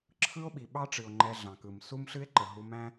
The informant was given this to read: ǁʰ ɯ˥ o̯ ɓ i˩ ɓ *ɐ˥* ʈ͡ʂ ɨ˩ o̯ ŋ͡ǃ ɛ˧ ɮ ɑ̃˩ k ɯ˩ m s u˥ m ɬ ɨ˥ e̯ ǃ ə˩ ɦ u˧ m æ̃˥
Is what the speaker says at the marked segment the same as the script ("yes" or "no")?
no